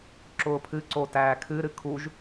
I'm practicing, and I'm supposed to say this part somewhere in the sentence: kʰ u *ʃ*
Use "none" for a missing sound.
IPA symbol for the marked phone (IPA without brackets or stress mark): ʒ